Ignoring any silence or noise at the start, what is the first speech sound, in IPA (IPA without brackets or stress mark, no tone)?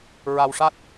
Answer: ɹ